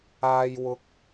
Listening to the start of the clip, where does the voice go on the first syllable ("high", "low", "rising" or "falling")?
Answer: low